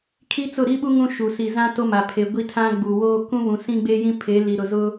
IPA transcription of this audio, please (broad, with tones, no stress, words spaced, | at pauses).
kʰi˦t͡sʊ˦˨ɾi˦ɓu˦ ŋũ˦ʃu˨ si˨zã˦ to˦ma˨ pʰe˨ ɡʷi˦tʰã˦ɡ͡bu˨woː˦ kũ˦βũ˨ sĩ˦ɡ͡be˦jĩ˦ pʰe˨˦li˨ɾʊ˨zʊ˦